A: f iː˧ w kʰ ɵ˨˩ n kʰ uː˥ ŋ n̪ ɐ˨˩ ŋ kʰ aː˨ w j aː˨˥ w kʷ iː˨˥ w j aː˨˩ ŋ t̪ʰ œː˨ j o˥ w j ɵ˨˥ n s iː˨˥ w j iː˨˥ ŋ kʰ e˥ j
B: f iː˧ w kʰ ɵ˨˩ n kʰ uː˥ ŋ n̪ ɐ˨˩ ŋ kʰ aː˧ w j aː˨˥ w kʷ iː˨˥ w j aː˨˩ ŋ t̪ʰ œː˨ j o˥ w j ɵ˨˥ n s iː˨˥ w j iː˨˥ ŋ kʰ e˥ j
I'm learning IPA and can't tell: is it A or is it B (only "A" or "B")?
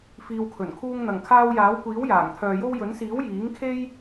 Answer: B